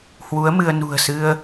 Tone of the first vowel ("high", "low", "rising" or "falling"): rising